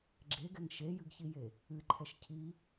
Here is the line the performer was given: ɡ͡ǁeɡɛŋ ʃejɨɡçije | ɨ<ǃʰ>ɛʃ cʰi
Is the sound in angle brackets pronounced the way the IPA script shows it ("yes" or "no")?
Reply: yes